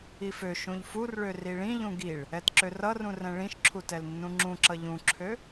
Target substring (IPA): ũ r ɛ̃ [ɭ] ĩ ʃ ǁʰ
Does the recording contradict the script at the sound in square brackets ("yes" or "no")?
no